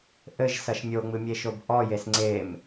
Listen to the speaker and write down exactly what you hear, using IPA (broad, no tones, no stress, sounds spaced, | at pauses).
ʔ ɘ ʒ s ɐ ʃ mʲ o ŋ͡m ɨ mʲ e ʃ o b ʔ ɔ j e s ŋ͡ǀ e m